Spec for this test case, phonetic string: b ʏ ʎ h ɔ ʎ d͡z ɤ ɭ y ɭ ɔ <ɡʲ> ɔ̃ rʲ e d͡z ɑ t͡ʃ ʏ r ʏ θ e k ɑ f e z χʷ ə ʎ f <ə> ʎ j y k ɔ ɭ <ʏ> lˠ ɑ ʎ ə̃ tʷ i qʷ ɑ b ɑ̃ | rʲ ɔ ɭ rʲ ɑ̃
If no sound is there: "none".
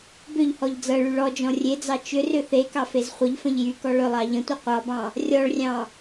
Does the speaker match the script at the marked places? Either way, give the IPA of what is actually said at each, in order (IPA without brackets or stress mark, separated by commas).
d͡ʒ, ə̃, ʏ